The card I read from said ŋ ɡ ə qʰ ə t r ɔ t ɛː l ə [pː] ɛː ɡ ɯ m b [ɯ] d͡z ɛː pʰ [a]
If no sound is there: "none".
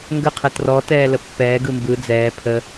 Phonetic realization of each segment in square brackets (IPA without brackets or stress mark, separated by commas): pː, ɯ, ə